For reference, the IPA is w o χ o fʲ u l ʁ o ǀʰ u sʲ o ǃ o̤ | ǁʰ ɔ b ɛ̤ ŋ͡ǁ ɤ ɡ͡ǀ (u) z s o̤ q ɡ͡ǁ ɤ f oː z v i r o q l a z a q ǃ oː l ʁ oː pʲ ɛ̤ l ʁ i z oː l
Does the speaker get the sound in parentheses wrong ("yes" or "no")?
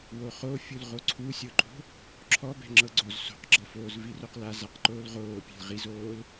yes